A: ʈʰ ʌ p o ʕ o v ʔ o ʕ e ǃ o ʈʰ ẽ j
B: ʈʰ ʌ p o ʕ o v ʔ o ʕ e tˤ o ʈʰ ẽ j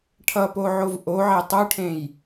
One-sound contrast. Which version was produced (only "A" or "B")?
B